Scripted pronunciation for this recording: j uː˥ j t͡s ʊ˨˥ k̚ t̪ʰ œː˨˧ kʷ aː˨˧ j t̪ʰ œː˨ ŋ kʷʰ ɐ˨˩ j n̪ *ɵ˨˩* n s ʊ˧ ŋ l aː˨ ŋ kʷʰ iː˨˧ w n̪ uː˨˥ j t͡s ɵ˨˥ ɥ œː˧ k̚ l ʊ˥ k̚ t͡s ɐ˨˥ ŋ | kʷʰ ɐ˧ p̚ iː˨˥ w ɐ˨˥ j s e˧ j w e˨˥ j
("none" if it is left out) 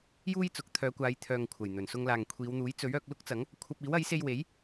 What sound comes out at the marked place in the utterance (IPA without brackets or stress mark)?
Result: ɵ˨˩